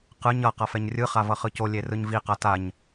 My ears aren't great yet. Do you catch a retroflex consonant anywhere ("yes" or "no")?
no